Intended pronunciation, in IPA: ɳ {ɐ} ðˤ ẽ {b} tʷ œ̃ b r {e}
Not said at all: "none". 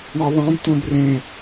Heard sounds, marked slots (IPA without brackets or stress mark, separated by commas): ɐ, b, ẽ